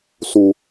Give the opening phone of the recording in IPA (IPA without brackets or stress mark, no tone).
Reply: s